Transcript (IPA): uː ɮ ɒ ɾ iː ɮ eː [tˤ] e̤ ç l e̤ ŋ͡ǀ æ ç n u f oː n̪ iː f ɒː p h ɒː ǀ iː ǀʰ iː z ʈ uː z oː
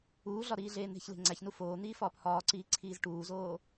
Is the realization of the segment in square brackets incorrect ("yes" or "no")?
yes